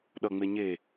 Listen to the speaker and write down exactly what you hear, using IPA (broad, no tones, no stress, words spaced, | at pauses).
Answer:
ɗʌŋ͡me ɲe